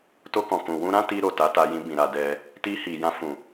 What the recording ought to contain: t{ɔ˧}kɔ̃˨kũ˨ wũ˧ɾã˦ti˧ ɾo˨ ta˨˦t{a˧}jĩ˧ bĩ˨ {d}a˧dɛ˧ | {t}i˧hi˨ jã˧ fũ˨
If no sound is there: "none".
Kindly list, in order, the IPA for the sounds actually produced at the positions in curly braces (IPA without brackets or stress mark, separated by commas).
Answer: o˧, a˧, ɾ, t